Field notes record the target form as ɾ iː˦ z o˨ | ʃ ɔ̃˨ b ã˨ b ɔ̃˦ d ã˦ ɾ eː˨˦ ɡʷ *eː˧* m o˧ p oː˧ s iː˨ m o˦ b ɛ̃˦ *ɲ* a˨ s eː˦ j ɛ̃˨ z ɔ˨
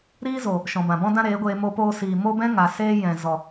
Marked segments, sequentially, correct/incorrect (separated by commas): correct, incorrect